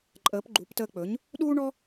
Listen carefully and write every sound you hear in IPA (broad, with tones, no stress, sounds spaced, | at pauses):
ǃʼ əː˩˥ p ɡ͡ǃ u˩˥ p t əː˧ k͡p ɵ˩˥ ɲ | ɗ uː˥ ɳ ɔ˥